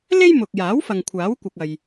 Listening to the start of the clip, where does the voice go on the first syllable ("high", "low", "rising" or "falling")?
high